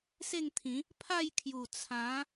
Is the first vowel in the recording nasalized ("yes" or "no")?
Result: no